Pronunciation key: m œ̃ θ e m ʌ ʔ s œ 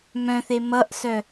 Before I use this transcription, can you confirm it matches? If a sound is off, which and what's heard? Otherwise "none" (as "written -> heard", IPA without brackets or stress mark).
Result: none